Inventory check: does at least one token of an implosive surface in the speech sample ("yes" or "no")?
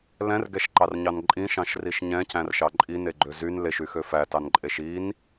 no